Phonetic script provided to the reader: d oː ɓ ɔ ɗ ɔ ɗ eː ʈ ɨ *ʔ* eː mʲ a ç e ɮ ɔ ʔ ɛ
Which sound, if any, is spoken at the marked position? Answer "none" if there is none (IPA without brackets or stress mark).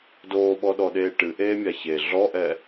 ʔ